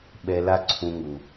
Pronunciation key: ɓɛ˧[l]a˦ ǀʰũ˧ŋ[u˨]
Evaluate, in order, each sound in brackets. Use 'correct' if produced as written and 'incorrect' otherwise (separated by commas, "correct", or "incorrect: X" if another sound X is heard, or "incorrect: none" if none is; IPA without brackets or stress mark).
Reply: correct, correct